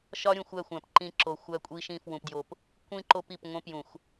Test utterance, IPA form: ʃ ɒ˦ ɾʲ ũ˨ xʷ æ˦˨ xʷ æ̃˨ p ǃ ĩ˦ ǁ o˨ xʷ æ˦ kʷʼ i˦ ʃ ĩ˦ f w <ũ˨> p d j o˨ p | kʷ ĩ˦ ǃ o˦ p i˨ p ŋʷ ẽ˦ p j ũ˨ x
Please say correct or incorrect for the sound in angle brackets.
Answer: correct